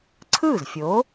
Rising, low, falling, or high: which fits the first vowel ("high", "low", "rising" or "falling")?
falling